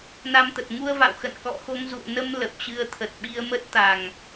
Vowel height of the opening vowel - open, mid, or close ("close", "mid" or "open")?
open